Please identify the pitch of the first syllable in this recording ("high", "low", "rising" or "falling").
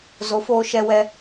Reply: rising